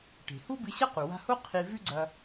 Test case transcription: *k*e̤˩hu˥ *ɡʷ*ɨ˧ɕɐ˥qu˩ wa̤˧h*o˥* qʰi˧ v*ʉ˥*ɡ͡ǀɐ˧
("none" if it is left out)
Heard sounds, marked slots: ʈ, b, o˥, ʉ˥

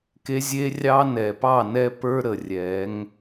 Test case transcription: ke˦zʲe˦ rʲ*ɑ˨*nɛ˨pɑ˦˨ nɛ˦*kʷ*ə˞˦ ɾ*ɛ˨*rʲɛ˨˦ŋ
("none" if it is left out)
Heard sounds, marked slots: ɑ˦, p, ə˨

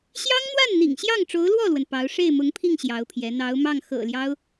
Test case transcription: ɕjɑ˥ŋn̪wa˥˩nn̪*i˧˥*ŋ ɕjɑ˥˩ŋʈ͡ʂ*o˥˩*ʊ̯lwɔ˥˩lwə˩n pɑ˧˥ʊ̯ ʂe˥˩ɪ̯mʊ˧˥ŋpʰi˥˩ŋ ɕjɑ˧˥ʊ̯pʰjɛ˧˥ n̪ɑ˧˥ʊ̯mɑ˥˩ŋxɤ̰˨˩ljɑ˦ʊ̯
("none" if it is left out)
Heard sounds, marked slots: ḭ˨˩, o˧˥

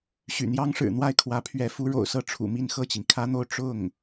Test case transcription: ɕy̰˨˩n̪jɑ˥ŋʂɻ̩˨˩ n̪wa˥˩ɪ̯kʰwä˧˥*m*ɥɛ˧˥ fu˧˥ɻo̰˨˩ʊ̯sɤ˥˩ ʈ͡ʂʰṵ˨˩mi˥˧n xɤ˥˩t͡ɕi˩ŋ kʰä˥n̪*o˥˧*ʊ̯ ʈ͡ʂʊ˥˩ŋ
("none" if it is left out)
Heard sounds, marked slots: pʰ, o˥˧

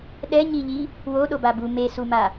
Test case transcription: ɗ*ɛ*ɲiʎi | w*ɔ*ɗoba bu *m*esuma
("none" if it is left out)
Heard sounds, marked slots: ɛ, o, m

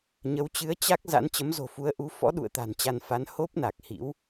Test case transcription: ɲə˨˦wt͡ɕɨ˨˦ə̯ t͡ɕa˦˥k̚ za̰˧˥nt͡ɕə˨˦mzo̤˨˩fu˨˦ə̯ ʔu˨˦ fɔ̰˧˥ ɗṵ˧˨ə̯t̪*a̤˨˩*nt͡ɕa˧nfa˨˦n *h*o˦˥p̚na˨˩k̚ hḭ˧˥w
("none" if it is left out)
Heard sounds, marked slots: a̤˨˩, h

